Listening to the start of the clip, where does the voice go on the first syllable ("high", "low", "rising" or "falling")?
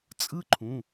high